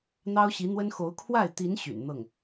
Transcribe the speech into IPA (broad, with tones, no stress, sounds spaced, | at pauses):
n̪ ɑ˥ ʊ̯ ɕ i˧˥ n̪ w ə˥ n x o˧˥ ʊ̯ kʰ w a˥˩ ɪ̯ t̪ i˧˥ n ɕ y̰˨˩ n n̪ ɤ˥˩ ŋ